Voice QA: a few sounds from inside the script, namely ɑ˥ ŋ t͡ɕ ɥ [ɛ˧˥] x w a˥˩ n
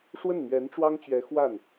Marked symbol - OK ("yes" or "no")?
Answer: yes